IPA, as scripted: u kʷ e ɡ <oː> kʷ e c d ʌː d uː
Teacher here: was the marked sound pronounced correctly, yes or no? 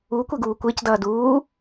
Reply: no